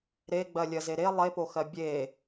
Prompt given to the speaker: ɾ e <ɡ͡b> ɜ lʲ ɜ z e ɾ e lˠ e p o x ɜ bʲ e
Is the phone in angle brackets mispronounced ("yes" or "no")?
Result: no